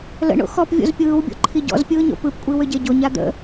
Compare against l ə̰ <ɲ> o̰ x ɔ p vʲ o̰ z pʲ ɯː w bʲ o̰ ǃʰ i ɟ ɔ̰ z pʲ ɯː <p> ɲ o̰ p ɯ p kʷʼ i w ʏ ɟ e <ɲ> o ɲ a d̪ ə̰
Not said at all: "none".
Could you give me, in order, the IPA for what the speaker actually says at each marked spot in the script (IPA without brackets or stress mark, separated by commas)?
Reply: ɳ, none, ɟ